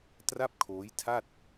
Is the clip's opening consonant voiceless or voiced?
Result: voiceless